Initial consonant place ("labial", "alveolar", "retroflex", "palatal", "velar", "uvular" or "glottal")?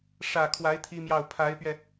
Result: retroflex